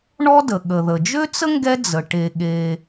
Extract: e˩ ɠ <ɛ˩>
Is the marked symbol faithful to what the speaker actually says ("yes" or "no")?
no